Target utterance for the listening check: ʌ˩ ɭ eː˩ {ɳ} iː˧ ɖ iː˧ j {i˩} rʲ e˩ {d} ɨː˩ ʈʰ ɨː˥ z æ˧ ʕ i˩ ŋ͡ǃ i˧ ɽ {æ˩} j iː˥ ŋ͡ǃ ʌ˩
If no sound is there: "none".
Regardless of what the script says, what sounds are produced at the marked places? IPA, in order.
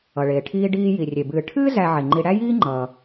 ʈʰ, i˩, b, æ˥

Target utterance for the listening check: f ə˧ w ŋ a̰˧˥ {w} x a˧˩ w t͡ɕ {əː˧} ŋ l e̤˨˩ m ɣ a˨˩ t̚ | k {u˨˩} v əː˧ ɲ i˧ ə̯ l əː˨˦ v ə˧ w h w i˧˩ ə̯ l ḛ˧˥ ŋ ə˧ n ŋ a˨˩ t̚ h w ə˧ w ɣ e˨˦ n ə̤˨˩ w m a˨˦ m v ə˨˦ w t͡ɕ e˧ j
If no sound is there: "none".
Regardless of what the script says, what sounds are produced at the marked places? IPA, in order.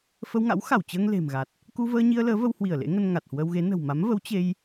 w, əː˧, u˧

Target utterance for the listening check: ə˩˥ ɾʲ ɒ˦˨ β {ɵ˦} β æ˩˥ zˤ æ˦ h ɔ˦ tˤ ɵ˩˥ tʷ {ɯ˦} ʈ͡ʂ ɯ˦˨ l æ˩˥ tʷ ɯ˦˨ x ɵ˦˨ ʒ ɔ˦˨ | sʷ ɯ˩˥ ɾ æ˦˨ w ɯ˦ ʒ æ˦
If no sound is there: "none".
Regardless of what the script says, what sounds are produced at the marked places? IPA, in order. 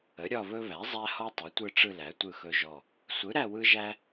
ɵ˦, ɯ˦˨

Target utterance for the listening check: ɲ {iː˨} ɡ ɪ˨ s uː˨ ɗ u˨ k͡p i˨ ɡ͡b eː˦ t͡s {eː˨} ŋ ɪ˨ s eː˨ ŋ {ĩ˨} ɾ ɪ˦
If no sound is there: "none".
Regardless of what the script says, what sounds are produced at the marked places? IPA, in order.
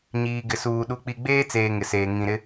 iː˨, eː˨, ĩ˨

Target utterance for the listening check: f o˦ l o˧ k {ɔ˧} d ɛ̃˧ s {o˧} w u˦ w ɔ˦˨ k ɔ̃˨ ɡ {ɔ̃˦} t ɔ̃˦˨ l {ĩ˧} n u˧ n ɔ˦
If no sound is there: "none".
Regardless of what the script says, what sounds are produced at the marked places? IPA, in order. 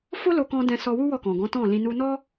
ɔ̃˧, ɔ˧, ɔ̃˨˦, ĩ˧

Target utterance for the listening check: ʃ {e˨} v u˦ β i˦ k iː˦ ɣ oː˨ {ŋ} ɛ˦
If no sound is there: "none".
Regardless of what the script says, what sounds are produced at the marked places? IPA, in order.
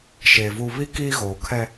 e˨, kʰ

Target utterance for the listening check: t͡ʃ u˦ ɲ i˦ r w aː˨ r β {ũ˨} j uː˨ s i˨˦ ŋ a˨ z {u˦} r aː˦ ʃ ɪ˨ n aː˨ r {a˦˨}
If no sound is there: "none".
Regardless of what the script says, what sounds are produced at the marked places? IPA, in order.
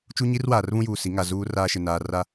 ũ˦, uː˦, a˦˨

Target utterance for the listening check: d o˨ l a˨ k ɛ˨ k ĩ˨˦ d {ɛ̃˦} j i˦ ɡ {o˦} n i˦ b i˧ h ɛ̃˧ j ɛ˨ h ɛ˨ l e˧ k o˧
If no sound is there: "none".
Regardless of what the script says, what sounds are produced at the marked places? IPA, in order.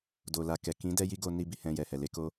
ɛ˦, o˧

